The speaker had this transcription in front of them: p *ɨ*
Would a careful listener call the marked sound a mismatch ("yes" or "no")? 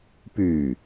yes